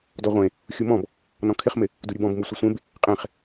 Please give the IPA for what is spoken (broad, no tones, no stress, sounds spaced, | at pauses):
d ɔ ʁʷ ẽ | xʲ u m ɔ̃ b | n ɔ̃ kʰ ɪ χ m ɪ | d u ɾʲ u b ɔ̃ b m u sʷ ɪ sʷ ẽ b | qʼ ẽ χ